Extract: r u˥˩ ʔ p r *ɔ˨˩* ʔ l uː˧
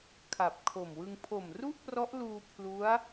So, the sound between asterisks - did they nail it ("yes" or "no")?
no